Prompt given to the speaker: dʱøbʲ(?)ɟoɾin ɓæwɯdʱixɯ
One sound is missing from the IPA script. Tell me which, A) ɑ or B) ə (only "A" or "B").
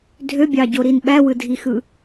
A